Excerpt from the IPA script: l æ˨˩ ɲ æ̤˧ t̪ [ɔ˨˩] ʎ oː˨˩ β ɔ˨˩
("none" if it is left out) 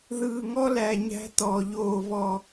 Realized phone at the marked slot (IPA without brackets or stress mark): ɔ˨˩